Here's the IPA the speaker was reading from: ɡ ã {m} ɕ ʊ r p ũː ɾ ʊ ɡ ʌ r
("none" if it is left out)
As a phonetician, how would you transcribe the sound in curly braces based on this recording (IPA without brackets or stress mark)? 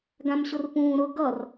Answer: m